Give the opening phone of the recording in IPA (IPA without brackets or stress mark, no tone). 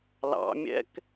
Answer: l